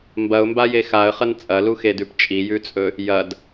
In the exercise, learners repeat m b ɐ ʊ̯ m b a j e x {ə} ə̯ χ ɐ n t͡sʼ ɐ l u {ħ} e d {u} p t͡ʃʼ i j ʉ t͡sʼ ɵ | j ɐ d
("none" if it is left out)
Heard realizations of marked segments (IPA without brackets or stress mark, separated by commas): a, x, ʉ